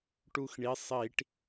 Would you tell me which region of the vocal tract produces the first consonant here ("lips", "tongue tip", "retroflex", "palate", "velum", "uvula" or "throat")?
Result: retroflex